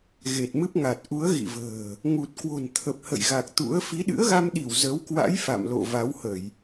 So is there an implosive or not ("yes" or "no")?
yes